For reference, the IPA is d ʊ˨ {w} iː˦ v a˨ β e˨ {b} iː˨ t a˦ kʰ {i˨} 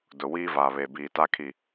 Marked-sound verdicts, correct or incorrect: correct, correct, correct

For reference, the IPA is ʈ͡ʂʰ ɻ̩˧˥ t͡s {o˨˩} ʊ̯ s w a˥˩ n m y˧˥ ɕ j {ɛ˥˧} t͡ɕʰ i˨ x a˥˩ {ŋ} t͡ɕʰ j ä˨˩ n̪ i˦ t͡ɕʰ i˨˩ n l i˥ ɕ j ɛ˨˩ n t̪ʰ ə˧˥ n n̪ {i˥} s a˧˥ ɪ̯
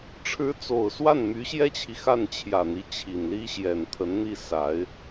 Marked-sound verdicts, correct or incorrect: correct, incorrect, incorrect, incorrect

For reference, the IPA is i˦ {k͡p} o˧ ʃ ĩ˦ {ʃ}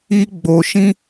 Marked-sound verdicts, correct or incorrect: incorrect, incorrect

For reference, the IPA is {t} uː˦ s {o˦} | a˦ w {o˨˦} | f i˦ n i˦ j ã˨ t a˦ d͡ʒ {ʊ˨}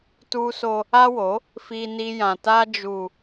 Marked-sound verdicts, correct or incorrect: correct, correct, correct, incorrect

